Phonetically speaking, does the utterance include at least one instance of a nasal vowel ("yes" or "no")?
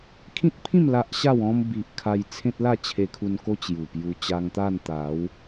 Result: yes